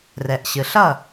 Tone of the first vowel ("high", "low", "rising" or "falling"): low